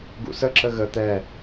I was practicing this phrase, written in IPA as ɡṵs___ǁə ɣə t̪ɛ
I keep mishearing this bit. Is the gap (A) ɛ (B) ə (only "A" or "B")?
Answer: B